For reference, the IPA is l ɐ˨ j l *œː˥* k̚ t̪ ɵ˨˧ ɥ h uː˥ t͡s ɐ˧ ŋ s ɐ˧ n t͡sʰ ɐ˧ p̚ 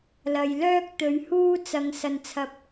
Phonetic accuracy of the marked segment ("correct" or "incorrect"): correct